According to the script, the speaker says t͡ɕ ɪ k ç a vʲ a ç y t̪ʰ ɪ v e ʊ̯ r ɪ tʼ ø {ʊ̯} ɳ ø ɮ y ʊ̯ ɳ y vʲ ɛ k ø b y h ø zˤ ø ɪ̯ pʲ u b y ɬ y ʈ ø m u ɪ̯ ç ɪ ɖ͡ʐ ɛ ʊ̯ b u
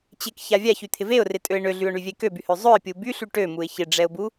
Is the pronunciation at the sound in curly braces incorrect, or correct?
incorrect